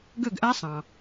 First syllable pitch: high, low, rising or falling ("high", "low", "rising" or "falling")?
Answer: falling